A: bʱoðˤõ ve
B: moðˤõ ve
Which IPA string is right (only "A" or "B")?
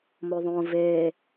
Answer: B